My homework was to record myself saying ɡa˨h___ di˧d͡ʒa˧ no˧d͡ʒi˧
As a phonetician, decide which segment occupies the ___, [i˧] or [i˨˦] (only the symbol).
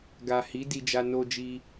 i˨˦